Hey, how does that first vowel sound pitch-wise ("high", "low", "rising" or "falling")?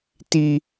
high